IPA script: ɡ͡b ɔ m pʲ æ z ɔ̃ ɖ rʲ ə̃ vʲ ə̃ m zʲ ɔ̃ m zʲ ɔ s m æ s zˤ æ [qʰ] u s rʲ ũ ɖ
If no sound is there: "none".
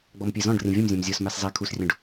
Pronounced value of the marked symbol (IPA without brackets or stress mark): kʰ